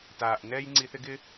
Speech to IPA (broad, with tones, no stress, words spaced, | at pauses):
taː˨ʔnɛː˦j ŋ͡ǀi˧θɪ˦ɡɪ˦